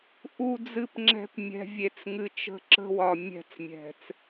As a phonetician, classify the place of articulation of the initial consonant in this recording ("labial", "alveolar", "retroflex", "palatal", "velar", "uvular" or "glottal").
glottal